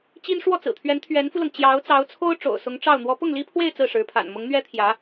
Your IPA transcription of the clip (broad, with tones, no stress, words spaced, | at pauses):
t͡ɕi˥n ʂwɔ˥˩t͡sɹ̩˨˩t̪ʰɥɛ˧˥n t̪ʰɥɛ˧˥nfu˧lɤ˩ŋ t͡ɕjɑ˧˥ʊ̯t͡sɑ˧˥ʊ̯t͡sʰo˥ʊ̯ ʈ͡ʂo̰˨˩ʊ̯sʊ˧˥ŋʈ͡ʂɑ˥˩ʊ̯ n̪wɔ˧˥pʊ˥˩ŋli˥pʰwe˥˧ɪ̯ t͡sɹ̩˥˩ ʂɻ̩˧˥pʰa̰˨˩n mʊ˧˥ŋn̪ɥɛ˥ t̪ʰjä˧˥